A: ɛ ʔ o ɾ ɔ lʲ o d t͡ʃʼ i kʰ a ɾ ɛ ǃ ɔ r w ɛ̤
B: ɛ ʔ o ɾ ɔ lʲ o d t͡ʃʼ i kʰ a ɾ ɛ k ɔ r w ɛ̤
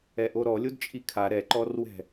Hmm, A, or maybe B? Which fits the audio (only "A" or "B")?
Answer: A